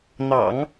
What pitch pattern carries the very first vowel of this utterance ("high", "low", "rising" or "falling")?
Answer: low